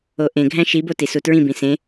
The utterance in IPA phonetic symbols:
oʔẽɡʱæ̃ ʃibo tisutɹĩbĩ sẽ

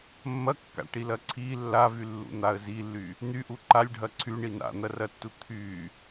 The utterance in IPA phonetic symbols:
mːɐkːa̰ʈilɐ ǀʰi lːavylːṵn̪aə̯ zilːy | n̪yʔu ǃalʲɖʱɐ ǀʰyɳi na̰n̪ɐrɐtːu t̪ʰy

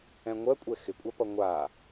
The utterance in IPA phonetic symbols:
ɛ̃ŋʷɜkʷʼɛ xɪkʷʼapʌ ŋʷa

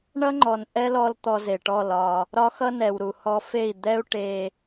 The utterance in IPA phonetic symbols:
ɳʌ˦ŋ͡ǃɔ˨n ʔɛ˦lɔ˧l t̪ɔ˧ze˨ʈɔ˦˨lɒ˧ | ɾɒ˦xʌ˦nɛ˨w ɾu˨hɔ˧fe˦˨i̯ d̪ɛ˦u̯ ʈe˧

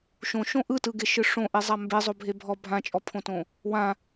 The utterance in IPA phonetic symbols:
ʃõʃõ ʔɯtɯɡeʃɯ ʂõʔezˤa mbezˤobʱe bʱɔ bʱãt͡ʃʼɔpʰõtõ | wã

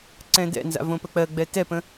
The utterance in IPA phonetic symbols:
ǀɛ̃dɛ̰nza̰ võpək͡pɜɡ͡bɛ tɛpə̃

